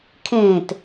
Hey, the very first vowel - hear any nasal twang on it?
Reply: yes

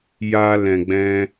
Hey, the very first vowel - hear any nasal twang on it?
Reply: no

